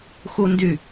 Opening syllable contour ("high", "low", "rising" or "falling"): high